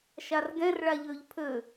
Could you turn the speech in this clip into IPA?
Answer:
ʃ a r ɡ ɛ̃ r ɭ a ʎ ø ʎ pʰ ø

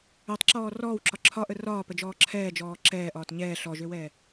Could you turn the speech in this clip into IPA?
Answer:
ø tˤ ǁ ɔː r ɔː w ǁ ɒ ǁʰ ɒ ʔ ə r ɒː p ə d͡ʒ ɔː ǁʰ ɛː d͡ʒ ɔː ǁ ɛː ʔ ɒː t ɲ ɛː ɬ ɔ ʒ ø w ɛː

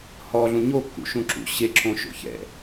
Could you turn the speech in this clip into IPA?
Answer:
h ɔ ɮ ũ ɲ o kː ṵ ʃ ũ ǁ ṵ ɕ e ǁ õ ʃ o̰ ç ɛ̰

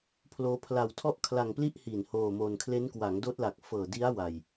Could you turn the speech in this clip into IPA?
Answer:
pʰ l oː˦˥ pʰ l a˧ w tʰ ɔ˥˩ ʔ kʰ l a˧ ŋ p l i˥˩ ʔ h i˨˩ n h oː˧ m o˧ n kʰ l e˦˥ n k w a˩˦ ŋ d oː˦˥ t̚ l a˨˩ k̚ f ɤː˨˩ d i˦˥ a̯ w a˨˩ j

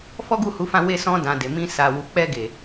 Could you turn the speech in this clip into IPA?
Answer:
f ɔ˦ ɡ u˦˨ h u˨˦ f ã˦˨ w e˧ s ɔ̃˧ d ã˨ d e˨ m ĩ˧ s a˨ w u˨ k͡p ɛ˧ ɡ e˨

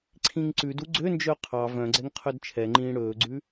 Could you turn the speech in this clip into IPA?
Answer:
ǀʰ ĩ ŋ ǀ ʉ d u ɡ͡ǀ ø n d͡ʒ œ qʰ ɑ v œ̃ ɡ͡ǀ ɛ ŋ qʰ œ d t͡ʃʰ ɛ ŋ͡ǃ ĩː ɽ ɵː ɡ͡ǀ ʉ

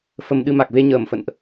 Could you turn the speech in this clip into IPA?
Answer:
f ə˧ m ɗ ɨ˧ m a˨˩ k̚ v e˧ ɲ əː˧˩ m f ə̰˧˨ n ʔ

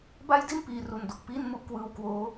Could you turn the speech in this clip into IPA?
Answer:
b a˥˩ j d i˥˩ n p iː˧ r u˧ n d o˨˩ k̚ p iː˥˩ n m u˥˩ ʔ k w ɯː˦˥ w k w oː˦˥

